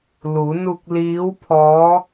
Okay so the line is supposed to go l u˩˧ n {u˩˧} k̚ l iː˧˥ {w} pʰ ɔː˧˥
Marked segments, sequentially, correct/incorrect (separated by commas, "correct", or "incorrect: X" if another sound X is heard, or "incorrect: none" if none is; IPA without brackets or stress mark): incorrect: u˧, correct